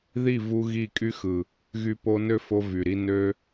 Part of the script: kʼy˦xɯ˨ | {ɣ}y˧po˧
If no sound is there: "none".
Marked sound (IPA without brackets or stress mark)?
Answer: ɣ